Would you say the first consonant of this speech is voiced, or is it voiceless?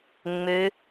voiced